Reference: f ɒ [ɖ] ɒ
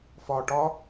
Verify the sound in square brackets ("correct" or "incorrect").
incorrect